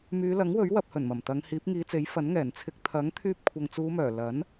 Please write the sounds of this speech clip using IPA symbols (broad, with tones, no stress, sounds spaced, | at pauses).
m yː˨˧ l ɐ˨˥ ŋ w ɵ˨˥ ɥ w ɐ˧ p̚ h ɵ˨˩ n m ɐ˨˩ m t̪ ɐ˨˧ ŋ h iː˨˥ p̚ ŋ iː˨˧ t͡s e˨˥ j f ɐ˨˥ n ŋ ɛː˨˩ n t͡sʰ ɪ˧ k̚ t̪ʰ ɐ˨˥ ŋ t̪ʰ yː˧ p̚ kʷʰ ɐ˨ ŋ t͡s uː˨˧ m œː˨˩ l ɐ˨˥ n